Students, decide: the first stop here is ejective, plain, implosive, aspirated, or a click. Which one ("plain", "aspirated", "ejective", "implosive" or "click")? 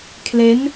aspirated